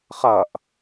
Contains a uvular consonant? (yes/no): yes